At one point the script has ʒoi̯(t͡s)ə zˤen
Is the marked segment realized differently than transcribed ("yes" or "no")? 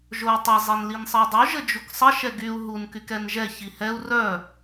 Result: yes